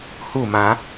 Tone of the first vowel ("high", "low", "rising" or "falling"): falling